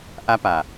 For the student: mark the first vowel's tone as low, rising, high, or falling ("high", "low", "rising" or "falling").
high